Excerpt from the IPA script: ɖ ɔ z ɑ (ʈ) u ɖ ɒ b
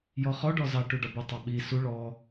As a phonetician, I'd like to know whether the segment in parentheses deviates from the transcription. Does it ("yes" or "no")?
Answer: no